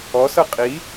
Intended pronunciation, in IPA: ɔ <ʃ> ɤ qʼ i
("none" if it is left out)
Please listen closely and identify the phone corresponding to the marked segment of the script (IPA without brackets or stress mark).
s